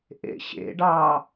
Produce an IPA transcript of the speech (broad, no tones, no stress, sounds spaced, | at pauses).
ʔ ḛ ɕ ḛ ɖ ɑ